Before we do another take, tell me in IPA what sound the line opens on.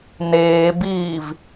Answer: n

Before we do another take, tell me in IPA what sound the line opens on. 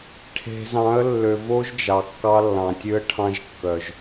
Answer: ʈʰ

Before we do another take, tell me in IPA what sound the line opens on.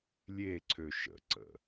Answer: lʲ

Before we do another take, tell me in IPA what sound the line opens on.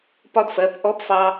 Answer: p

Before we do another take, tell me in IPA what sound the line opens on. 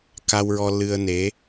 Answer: k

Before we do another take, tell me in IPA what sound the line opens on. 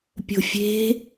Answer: pʲ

